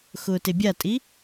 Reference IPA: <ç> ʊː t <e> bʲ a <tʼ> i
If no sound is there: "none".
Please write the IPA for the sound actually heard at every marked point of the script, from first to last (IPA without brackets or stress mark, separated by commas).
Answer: x, e, tʼ